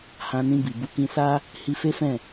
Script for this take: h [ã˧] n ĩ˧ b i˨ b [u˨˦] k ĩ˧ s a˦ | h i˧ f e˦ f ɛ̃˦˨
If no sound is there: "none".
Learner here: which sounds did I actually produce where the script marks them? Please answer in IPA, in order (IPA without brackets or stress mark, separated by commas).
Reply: ã˧, u˨˦